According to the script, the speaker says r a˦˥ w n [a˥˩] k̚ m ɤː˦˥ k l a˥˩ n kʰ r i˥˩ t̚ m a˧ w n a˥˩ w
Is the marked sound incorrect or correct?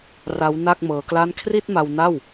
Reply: correct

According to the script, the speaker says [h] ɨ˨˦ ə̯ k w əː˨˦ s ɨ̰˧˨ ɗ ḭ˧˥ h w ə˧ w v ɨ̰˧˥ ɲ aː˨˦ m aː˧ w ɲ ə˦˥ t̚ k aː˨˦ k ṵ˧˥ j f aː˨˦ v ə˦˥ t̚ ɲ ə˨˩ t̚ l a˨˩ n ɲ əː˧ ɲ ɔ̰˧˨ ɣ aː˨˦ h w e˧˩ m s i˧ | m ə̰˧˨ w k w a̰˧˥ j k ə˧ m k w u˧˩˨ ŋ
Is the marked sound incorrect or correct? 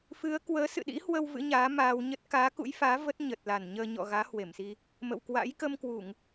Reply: incorrect: f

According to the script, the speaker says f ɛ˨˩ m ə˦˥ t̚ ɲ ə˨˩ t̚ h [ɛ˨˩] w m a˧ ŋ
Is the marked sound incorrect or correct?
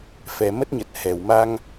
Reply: correct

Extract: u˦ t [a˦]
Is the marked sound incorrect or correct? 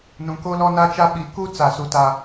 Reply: correct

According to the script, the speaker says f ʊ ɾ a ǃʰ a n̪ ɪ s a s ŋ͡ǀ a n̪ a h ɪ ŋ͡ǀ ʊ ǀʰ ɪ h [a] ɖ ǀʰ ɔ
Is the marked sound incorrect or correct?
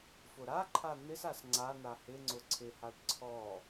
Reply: correct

